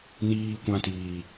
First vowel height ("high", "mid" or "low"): high